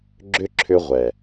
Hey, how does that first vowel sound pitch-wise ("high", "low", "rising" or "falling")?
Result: high